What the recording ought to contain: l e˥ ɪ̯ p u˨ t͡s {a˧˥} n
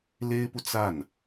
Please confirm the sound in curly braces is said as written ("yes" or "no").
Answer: no